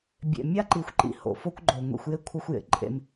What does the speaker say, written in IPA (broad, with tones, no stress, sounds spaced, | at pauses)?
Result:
bʲ ḛ˨ mʲ a˦ ǃ i˨ xʷ ǃ ḭ˨ h o̰˨ f o˦ kʷ ɡ͡ǃ o˨ ŋʷ ḭ˨ xʷ j e˦ kʷʰ ʌ˦ xʷ j ḛ˨ ǃʼ ḛ˦ m